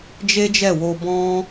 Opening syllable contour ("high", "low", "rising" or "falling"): high